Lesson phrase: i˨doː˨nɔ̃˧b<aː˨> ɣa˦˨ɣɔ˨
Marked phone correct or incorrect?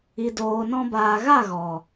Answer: correct